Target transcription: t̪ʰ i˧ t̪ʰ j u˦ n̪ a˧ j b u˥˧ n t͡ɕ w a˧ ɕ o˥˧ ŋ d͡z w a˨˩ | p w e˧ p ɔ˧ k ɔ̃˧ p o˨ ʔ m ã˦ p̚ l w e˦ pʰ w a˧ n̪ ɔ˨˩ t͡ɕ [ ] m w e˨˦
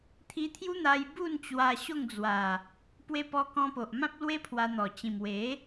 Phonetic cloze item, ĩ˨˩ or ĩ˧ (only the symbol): ĩ˨˩